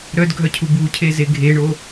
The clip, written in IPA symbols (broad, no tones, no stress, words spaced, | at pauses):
ɾœdɡʱœcʰu bucʰeze ɡʱeɳo